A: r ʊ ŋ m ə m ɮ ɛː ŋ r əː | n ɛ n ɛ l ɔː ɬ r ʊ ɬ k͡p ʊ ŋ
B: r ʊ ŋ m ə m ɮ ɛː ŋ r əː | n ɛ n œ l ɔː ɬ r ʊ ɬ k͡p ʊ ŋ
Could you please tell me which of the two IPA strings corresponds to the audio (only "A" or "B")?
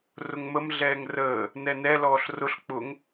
A